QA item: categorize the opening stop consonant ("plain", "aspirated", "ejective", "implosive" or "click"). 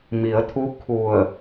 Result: aspirated